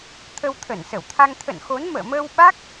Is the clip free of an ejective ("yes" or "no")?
yes